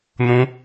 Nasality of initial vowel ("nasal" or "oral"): nasal